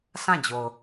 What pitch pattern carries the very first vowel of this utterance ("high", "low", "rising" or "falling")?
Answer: falling